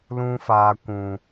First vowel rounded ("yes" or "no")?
yes